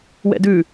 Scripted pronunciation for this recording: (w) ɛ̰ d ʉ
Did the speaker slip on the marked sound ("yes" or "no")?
no